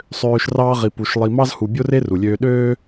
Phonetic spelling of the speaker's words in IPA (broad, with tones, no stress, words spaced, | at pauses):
sˤøː˧ʃ rɑː˦ʁi˧pu˧ʃ lˠi˧mɑ˦z hu˧ bʲo˧re˧ ru˨lʲøː˧ ɗøː˦